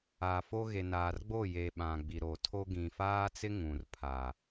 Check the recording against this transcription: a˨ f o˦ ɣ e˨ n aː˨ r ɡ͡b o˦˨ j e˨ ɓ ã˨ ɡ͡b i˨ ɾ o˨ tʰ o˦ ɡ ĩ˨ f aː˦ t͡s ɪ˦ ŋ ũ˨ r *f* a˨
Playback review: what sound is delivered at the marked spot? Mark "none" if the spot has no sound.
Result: pʰ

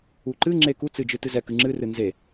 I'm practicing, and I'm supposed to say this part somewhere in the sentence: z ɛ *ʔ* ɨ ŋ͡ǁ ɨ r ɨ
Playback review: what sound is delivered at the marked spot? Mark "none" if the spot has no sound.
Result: k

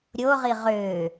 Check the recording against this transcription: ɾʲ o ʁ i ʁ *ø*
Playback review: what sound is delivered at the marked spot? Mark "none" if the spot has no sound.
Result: ø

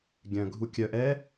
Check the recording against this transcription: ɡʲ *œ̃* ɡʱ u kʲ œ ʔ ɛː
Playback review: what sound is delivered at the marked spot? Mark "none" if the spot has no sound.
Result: œ̃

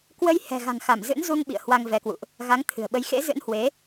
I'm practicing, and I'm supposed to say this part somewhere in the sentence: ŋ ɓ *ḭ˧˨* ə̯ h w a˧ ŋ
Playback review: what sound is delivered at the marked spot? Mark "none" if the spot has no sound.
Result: ḭ˧˨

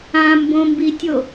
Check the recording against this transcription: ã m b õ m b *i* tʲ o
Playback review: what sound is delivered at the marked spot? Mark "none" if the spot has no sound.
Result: i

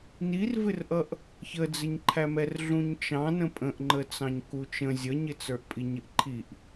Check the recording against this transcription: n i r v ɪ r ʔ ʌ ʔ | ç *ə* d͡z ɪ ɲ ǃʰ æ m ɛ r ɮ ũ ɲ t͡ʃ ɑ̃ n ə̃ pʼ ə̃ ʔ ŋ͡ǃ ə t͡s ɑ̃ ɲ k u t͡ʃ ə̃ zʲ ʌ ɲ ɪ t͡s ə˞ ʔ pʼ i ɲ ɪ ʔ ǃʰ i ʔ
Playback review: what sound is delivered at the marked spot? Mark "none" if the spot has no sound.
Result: ə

